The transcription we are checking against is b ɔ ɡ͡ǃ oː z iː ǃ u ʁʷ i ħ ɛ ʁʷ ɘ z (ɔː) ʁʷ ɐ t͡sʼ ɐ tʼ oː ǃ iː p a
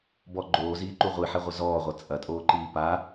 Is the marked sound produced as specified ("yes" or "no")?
yes